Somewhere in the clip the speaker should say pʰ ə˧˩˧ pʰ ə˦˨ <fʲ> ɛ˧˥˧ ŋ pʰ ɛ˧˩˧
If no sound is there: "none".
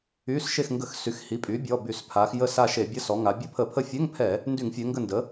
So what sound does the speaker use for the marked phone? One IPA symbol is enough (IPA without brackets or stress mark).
fʲ